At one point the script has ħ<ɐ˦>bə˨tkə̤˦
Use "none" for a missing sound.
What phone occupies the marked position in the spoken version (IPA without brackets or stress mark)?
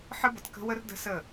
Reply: ə˦